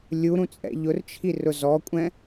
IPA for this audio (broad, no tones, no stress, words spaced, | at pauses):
lʲuɾũt͡sʼɛ̰ ʎʊrt͡ʃʰi rʊzɔkʷʼɛ̃